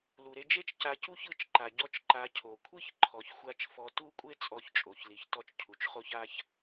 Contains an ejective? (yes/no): yes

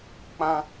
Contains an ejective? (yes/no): no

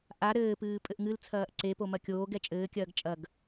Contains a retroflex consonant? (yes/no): no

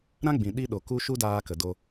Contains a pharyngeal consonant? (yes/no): no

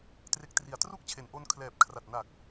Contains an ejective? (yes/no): no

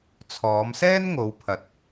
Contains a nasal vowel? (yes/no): no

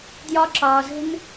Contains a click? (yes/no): yes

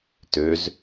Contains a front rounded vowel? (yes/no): yes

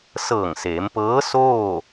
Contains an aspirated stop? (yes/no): no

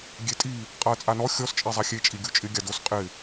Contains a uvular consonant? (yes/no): yes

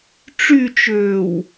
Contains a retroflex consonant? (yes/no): yes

